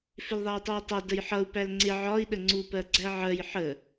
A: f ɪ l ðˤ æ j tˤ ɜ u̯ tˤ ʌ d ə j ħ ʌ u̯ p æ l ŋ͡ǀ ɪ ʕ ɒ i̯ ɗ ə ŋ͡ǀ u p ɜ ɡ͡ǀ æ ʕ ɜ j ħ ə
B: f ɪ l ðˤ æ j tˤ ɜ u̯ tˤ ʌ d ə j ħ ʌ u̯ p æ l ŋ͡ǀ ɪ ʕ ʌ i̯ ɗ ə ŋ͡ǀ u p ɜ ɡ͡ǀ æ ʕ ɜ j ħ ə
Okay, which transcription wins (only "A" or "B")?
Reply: A